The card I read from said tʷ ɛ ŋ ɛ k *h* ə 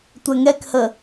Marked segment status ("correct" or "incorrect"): correct